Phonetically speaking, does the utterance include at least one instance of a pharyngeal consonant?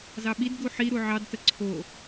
yes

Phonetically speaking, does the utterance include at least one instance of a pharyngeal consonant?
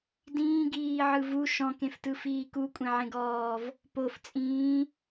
yes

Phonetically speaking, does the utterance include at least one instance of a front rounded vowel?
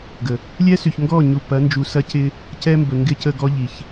yes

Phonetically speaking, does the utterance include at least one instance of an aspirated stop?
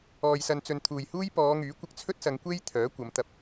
yes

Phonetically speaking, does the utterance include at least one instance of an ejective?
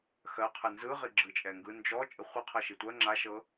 yes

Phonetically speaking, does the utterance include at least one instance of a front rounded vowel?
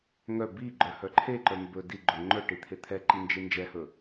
yes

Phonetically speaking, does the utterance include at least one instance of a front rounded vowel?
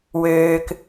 yes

